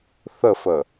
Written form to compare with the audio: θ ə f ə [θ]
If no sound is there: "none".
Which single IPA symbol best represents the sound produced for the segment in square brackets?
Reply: none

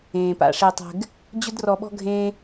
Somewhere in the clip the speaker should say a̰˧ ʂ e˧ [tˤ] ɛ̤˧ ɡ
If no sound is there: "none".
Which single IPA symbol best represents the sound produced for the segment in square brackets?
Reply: tˤ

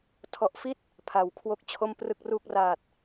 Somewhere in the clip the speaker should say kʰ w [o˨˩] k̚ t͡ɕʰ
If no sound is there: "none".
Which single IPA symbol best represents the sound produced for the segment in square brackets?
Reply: o˥˩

